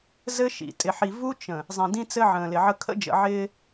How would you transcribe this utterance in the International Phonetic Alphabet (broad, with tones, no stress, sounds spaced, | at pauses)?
z ɘ˦ ʃ ḭ˨ tʼ ɪ˨ ħ i˨ v u˦ t͡ʃ ə̃˨ | zˤ ĩ˨ d ĩ˦ t͡s ɘ˦ ʕ ə̃ː˨ l ɪ˨ ʕ ə˦ kʰ ə̰˦ d͡ʒ ə̰˨ ʕ ɪː˦